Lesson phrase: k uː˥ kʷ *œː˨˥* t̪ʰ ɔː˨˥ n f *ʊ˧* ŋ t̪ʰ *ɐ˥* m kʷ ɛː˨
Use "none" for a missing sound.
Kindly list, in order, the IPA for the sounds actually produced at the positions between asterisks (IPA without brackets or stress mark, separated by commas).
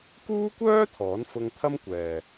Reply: œː˥, ʊ˧, ɐ˥